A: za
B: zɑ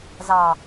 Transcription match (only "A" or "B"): B